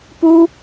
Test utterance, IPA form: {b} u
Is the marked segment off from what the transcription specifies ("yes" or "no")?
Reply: yes